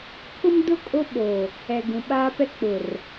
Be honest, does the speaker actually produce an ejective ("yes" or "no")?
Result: yes